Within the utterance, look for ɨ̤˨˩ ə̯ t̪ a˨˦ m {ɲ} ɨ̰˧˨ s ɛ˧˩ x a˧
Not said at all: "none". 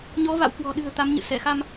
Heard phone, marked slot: ɲ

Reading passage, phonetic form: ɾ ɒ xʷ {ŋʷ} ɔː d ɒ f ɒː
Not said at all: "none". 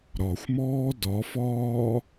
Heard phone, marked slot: m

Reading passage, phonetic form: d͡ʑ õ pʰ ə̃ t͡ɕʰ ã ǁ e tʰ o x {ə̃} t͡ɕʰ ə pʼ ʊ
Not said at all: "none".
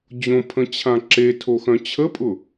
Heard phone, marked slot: œ̃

